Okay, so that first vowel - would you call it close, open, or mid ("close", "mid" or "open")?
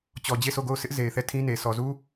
mid